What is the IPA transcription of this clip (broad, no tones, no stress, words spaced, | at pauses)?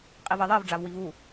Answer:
qʼivɜðˤɜv ɖ͡ʐavwivu